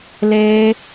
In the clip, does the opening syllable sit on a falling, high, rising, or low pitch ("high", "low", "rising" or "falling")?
high